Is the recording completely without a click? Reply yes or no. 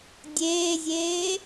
yes